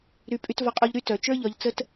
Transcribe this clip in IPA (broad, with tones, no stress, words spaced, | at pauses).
ɾy˨ pʼy˧tvɒ˧qʼo˧ʎɾy˧ tœ˨ t͡ʃə˞˦ʎɒ˧ʎt͡sə˦t